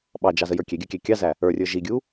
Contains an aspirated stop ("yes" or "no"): no